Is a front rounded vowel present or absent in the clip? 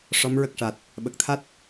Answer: absent